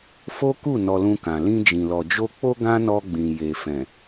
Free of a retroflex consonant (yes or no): yes